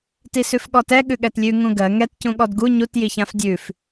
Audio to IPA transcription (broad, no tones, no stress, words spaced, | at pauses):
tisʉfɠɔtɛ ɠʉɠɛtlʲʉ ŋũɡɜ ŋɛt cũɠɔdɡu ɲut jiçãfdʲʉf